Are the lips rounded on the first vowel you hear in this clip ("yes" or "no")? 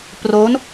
yes